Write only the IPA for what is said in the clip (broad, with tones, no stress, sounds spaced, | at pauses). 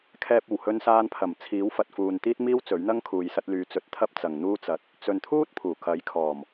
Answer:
kʰ ɛː˧ p̚ o˨˩ w h ɵ˧ n s aː˧ n pʰ ɐ˨˩ m t͡sʰ iː˨˥ w f ɐ˨ t̚ f uː˨ n t̪ iː˥ t̚ m iː˥ w t͡s ɵ˨˥ ɥ n̪ ɐ˥ ŋ kʰ uː˨ j s ɐ˧ t̚ l yː˨˧ t͡s ɵ˧ t̚ t̪ʰ ɐ˥ p̚ t͡s ɐ˨ ŋ n̪ uː˥ t͡s ɐ˧ t̚ | t͡s ɵ˨ n t̪ʰ uː˥ t̚ pʰ uː˨˩ k ɐ˨˥ j kʰ ɔː˨˩ m